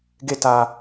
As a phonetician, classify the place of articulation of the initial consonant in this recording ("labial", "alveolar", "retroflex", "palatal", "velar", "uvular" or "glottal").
velar